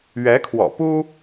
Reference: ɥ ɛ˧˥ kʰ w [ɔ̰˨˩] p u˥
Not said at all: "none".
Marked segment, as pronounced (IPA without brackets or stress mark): ɔ̰˨˩